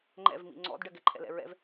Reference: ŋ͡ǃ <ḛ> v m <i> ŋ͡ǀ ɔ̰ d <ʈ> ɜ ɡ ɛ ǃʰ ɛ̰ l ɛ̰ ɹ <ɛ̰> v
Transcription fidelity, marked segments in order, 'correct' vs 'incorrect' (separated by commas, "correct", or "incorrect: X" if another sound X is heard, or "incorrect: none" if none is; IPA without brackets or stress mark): incorrect: ɛ̰, incorrect: ḭ, incorrect: ɖ, correct